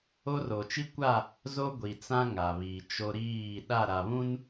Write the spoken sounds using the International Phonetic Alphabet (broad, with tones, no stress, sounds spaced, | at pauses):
o˦ r o˨ t͡ʃ i˦ kʷ a˦˨ | z o˦ ɡʷ i˨ t͡s ã˦ ŋ a˨ β i˨ t͡ʃ o˦ ɾ iː˦˨ ɗ a˦˨ ɾ a˨ β ũ˦ n